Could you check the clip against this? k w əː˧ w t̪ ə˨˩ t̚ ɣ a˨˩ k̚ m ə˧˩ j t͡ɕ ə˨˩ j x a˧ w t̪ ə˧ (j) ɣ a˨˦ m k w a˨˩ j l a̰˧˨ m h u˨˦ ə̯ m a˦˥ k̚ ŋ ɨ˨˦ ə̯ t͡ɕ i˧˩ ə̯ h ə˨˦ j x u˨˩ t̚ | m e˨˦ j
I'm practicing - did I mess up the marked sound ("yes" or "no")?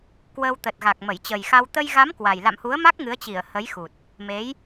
no